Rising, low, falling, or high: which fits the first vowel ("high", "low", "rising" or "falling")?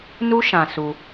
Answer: high